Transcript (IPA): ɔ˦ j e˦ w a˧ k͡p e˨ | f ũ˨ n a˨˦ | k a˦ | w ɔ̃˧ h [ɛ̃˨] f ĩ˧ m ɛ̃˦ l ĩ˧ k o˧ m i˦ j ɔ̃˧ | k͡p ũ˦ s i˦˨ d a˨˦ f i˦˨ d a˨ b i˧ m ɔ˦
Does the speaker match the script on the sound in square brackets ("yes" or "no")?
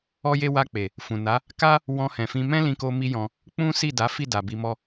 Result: yes